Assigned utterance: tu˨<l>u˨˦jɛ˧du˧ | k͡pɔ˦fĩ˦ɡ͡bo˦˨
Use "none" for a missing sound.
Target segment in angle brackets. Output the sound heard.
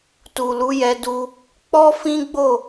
l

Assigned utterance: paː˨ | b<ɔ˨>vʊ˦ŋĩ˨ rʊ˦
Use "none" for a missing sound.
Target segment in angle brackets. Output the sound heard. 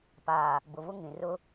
ʊ˨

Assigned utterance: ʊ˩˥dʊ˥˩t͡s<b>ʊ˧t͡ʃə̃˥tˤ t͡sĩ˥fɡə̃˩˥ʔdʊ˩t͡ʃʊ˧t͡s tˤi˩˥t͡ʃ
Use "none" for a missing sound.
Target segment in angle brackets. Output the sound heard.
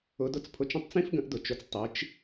pʰ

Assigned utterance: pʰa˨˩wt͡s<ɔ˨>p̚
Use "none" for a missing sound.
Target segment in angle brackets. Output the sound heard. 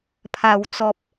ɔ˨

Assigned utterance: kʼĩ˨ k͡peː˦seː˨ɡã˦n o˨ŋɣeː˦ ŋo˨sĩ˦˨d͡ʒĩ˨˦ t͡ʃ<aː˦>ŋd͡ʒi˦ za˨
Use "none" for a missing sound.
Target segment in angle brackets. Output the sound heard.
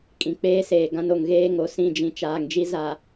aː˨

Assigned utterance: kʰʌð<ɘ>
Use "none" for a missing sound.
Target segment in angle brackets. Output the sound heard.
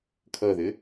ɘ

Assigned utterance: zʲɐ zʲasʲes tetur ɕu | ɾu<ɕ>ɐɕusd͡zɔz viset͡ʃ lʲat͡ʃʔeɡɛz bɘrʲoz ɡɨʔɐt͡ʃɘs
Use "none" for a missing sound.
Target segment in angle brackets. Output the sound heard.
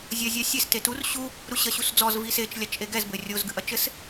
ɕ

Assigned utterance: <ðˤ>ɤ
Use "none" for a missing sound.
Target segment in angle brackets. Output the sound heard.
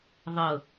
ðˤ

